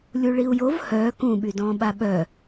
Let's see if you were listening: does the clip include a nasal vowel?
yes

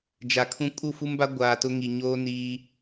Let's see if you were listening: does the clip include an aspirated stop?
yes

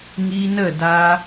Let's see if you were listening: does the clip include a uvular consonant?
no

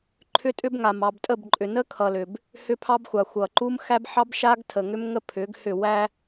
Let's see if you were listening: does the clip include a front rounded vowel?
yes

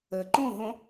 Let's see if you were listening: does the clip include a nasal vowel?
yes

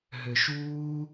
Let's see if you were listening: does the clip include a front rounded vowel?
yes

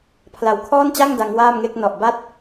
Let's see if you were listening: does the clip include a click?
no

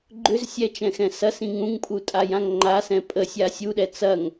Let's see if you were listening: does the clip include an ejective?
yes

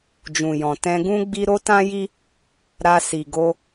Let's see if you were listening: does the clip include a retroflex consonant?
no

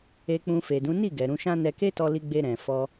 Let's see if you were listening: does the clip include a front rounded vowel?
no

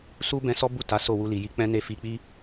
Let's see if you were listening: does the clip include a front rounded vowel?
no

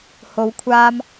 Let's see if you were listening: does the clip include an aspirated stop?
yes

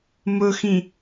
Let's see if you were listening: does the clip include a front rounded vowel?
no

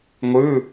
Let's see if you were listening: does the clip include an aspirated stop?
no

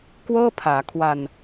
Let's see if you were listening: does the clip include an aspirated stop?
yes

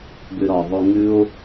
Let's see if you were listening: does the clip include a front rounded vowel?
yes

